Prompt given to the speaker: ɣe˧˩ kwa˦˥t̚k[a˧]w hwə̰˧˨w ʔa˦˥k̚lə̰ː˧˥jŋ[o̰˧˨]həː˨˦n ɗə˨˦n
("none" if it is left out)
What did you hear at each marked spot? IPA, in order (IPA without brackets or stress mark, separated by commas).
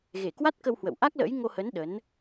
ə˧, o˧